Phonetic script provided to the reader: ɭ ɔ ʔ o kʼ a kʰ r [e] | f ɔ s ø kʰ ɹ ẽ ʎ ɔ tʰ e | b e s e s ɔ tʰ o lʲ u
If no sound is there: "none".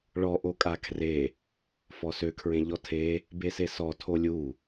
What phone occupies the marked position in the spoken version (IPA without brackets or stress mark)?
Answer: e